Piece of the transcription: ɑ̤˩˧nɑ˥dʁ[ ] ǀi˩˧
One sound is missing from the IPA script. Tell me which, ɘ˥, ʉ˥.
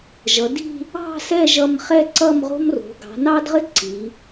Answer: ɘ˥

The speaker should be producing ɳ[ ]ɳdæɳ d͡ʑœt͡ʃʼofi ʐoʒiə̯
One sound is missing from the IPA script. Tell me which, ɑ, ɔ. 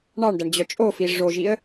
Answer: ɑ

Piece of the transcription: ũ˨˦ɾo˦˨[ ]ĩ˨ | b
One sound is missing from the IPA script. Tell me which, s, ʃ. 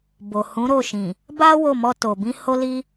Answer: ʃ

